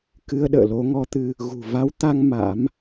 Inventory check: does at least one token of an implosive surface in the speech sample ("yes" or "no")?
yes